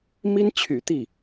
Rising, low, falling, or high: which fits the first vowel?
high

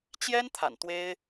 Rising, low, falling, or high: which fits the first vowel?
high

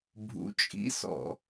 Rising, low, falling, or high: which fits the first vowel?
rising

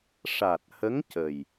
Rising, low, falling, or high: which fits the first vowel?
low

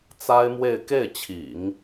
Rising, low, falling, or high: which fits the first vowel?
high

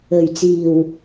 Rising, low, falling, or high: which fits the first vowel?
low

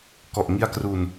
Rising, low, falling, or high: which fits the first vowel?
low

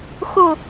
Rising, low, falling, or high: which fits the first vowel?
falling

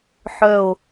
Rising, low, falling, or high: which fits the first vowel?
low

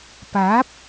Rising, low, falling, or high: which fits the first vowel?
rising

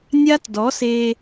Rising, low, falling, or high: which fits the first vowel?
high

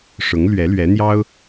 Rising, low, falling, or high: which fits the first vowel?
rising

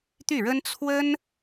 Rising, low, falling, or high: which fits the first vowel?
falling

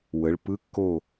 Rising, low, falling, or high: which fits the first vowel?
rising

